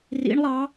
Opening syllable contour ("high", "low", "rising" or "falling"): rising